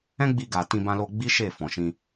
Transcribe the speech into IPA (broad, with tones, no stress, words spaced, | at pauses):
ɛ̃˦ɡ͡bi˧ɡa˨ tĩ˧bã˧lo˧ ɡ͡bi˦ʃe˦˨ fɔ̃˨ʃĩ˧